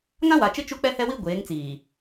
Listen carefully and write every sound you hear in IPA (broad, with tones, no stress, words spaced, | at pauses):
ŋã˦wa˨t͡ʃɪ˦ t͡ʃu˦k͡pɛ˦hɛ˦wi˦ ɡʷeː˨˦ŋt͡siː˨